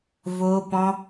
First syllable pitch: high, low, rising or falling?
high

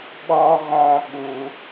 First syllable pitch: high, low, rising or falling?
high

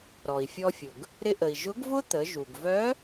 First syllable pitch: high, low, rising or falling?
low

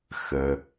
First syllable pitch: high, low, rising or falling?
low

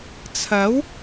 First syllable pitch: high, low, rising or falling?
rising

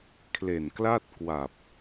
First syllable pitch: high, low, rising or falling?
low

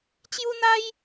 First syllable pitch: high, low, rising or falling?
high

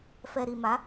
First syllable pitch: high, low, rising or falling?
low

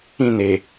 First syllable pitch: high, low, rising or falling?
falling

